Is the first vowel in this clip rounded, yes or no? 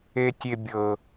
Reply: no